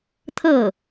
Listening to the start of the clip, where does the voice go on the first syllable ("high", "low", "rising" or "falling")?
falling